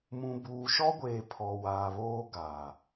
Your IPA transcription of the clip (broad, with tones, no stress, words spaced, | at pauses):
mũ˨buː˨ʃɔ˦ɡʷeː˨ pʰɔ˨waː˨βoː˦ ɡaː˨